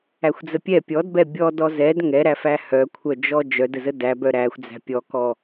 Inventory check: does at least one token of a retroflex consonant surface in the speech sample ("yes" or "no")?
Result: no